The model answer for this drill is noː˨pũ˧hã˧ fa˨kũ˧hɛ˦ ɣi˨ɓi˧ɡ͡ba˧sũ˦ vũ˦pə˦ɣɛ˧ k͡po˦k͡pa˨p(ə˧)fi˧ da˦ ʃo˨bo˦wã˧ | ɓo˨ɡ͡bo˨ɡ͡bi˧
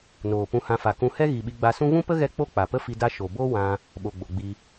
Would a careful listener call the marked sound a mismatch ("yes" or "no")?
yes